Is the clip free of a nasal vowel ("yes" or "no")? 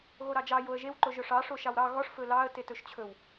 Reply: yes